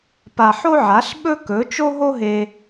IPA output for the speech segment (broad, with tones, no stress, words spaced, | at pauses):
pa˧ħo˥ʕa˨˥ɬ ɓɵ˥kɵ˨˥ t͡ʃo˥ɦo˥ɦe˧